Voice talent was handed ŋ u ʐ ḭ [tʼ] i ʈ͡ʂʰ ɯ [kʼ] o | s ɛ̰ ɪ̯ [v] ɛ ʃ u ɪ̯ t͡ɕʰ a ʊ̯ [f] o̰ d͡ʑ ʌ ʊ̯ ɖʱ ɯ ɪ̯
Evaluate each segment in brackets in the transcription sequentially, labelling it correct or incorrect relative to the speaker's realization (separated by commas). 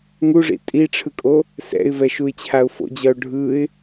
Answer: correct, correct, correct, correct